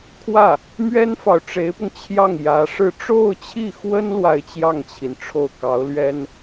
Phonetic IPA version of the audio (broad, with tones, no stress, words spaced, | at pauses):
kʰwä˥˩ | mɥɛ˥nfɑ˨ʊ̯ʈ͡ʂe˧˥ɪ̯pʊ˧ŋ t͡ɕʰjɑ˥˩ŋjä˧˥ʂɻ̩˥˧ ʈ͡ʂo˥˧ʊ̯t͡ɕʰi˥˩xwə˥n lwa˥˧ɪ̯t͡ɕjɑ˥˩ŋt͡ɕʰi˩n ʈ͡ʂʰo˥˩ʊ̯ kɑ˧˥ʊ̯lɥɛ˥n